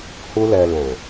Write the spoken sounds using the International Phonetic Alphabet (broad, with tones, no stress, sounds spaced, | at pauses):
h u˦ l ɛ˧ l ɛ̃˨